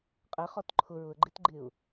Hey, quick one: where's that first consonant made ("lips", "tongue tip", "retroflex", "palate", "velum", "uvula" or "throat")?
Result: uvula